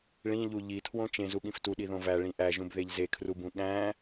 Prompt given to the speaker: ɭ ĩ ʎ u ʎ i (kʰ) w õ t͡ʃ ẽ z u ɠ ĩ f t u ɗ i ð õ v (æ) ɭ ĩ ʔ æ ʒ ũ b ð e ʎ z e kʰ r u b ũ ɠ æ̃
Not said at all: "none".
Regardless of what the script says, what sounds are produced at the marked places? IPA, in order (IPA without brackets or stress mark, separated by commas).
tʰ, æ